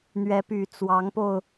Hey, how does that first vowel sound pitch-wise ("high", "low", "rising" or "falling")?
rising